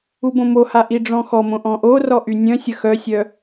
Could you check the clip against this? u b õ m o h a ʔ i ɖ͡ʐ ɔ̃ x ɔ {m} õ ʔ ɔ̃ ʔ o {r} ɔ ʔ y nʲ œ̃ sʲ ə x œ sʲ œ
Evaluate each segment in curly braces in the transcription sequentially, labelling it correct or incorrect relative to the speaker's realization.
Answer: correct, correct

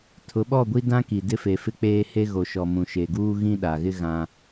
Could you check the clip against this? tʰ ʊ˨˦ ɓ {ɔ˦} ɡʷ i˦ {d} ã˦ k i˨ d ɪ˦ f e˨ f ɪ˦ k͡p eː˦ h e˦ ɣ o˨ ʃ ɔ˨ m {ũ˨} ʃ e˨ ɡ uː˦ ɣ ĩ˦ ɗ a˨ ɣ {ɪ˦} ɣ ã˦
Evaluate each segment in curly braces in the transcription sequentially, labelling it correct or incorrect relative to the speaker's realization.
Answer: incorrect: ɔ˦˨, correct, correct, correct

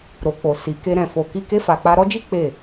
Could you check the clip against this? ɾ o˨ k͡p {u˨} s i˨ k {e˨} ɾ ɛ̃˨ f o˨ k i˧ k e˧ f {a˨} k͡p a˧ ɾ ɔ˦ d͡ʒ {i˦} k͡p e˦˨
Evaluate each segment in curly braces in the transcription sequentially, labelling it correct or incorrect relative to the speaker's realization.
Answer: incorrect: o˨, incorrect: e˧, correct, correct

